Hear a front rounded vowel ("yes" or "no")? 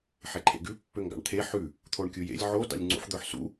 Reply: yes